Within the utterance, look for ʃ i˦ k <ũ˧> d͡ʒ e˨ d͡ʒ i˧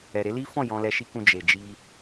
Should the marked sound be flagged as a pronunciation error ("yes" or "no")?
no